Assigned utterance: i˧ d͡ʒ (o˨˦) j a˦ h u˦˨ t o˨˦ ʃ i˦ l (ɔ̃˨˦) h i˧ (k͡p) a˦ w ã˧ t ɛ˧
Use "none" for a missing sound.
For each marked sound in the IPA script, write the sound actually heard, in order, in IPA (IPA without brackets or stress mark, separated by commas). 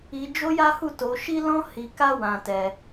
o˦, ɔ̃˦, k